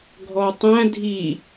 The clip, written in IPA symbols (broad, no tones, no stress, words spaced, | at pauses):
ɡʱɔtˤæ̃ dʱi